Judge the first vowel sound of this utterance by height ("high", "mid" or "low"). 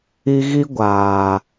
high